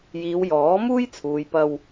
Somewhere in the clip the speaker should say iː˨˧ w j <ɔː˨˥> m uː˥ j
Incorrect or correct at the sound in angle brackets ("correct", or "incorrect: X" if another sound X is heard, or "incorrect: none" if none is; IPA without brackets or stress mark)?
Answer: correct